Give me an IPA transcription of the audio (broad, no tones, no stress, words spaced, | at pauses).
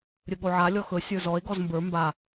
ɾʲɵɠoʕa lʲɔxɵ sʲə˞zɔe̯ ɡɔzmbə˞ mba